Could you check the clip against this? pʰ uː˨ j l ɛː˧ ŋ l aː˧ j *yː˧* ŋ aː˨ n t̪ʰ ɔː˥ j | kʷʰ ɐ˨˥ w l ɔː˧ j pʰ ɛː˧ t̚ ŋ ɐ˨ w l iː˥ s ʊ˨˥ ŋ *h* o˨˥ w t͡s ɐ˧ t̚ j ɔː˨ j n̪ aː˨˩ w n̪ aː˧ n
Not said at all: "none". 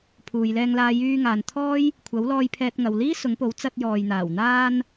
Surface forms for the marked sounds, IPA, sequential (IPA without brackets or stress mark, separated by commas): yː˧, p